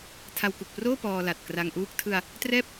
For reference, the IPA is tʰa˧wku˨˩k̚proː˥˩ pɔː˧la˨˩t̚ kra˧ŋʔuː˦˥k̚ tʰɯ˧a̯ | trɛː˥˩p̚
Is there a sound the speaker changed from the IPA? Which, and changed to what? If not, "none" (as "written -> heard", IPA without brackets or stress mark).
none